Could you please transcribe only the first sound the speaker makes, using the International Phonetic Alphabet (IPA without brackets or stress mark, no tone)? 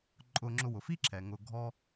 ǃʼ